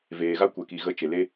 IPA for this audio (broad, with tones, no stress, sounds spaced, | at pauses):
v eː˨ ɣ a˧ kʷ ɛ˨ k i˨ ɣ ə˨˦ t͡ʃ e˨ l e˧